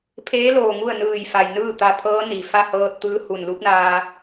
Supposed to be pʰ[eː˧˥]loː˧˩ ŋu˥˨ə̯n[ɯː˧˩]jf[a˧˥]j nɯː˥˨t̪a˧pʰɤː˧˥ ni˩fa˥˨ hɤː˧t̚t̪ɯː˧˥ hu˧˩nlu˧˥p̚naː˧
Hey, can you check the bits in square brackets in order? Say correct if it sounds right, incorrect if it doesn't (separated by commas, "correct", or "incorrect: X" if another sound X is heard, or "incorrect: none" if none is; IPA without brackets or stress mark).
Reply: correct, correct, incorrect: a˩